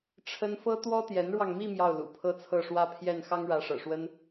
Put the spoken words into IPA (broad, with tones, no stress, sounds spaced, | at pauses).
ʈ͡ʂʰ ə˥ n f ɤ˥ t̪ w ɔ˥ t̪ j ɛ˧˥ n ɻ w ɑ˧ ŋ m i˥˧ m j ɑ˥˩ ʊ̯ l ṵ˨˩ pʰ ɤ˥ t͡sʰ ɤ˥˧ ʂ w ä˥˧ pʰ j ɛ˥˩ n x ɑ˥ ŋ ɻ ä˧˥ ʂ ɤ̰˨˩ ʂ w ə˥ n